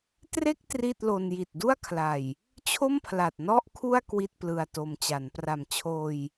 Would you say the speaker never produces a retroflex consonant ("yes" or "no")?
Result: yes